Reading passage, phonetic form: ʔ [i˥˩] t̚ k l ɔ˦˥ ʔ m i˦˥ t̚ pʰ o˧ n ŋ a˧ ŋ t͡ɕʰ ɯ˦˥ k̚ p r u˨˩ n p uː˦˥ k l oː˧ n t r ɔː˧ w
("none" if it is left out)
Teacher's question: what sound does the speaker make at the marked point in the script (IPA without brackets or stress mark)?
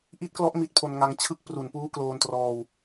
i˦˥